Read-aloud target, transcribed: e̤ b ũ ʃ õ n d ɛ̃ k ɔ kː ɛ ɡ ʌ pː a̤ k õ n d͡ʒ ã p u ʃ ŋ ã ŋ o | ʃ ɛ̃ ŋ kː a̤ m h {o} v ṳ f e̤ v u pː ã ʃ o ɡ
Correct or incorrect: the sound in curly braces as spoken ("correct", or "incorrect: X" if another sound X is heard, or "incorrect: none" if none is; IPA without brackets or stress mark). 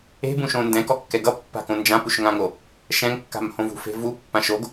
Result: incorrect: õ